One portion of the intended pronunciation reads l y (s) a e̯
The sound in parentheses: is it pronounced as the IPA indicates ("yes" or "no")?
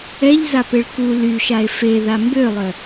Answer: no